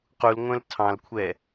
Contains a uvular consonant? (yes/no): yes